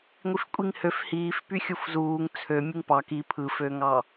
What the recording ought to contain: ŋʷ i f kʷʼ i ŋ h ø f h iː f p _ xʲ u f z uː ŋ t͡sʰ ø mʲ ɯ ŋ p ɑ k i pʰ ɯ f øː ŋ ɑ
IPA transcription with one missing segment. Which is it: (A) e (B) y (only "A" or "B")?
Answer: B